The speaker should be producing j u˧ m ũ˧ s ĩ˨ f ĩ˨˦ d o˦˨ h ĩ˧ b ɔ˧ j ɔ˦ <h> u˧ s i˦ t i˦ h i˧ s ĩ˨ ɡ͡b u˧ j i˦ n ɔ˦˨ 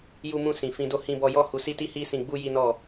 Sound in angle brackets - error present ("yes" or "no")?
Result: no